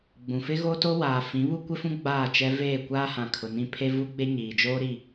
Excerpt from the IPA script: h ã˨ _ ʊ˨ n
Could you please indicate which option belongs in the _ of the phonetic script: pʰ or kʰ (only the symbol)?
kʰ